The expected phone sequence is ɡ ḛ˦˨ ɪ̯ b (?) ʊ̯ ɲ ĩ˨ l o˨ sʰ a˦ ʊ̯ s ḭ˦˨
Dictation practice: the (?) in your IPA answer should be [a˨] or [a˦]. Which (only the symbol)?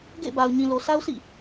a˨